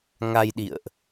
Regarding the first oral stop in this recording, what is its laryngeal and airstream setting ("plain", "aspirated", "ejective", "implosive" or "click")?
implosive